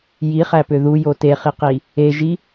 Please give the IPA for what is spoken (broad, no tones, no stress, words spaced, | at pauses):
jiχæpø ðujo teχiqi | eʒi